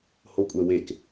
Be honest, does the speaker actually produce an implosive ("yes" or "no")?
no